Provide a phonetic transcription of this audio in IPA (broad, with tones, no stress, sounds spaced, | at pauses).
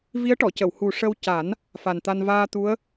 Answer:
v i˧˥ ə̯ ʈ ɔ˨˩˨ c ə˨˩˨ w h u˨˩ ʂ ə˧ w c a˨˩˦ n | f a˨˩ n t̪ a˧ n v aː˧ t̪ u˧˥ ə̯